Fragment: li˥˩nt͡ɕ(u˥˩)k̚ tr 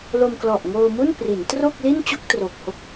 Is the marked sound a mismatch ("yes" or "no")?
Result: yes